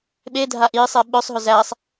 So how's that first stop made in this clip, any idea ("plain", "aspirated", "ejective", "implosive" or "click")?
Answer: implosive